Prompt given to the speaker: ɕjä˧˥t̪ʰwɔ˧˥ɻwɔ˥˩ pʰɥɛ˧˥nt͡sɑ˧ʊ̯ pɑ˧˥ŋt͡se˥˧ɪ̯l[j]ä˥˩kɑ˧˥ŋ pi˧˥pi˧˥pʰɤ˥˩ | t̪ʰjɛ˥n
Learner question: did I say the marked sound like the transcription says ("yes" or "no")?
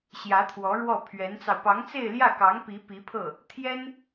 yes